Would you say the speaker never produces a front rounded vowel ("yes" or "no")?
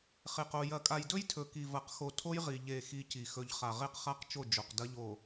yes